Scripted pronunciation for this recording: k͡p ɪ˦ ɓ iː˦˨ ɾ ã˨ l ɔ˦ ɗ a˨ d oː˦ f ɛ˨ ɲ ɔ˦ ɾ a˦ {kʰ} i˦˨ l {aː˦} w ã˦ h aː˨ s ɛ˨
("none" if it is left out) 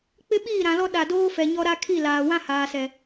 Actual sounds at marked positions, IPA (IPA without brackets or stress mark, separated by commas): kʰ, aː˨